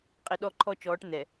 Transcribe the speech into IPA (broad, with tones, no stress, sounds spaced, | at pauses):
qʼ i˨ ɗ ɔ˦˨ ǃʰ ɔ˦ t͡ʃ ɔː˨˦ ʈ n̪ ɛ˨